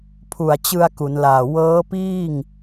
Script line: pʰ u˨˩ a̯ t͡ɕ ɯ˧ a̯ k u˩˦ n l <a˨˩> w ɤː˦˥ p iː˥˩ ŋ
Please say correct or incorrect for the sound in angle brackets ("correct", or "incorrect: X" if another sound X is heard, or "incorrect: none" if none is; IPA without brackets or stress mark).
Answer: incorrect: aː˨˩